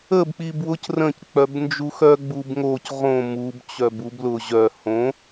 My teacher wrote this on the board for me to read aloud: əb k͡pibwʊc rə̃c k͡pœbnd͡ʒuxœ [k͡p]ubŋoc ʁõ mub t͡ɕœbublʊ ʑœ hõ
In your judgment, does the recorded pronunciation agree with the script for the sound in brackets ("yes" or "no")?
no